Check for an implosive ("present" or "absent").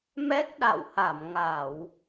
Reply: present